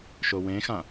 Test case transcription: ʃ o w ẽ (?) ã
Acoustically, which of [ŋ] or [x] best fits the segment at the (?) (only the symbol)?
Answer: x